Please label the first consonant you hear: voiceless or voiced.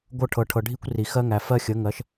voiced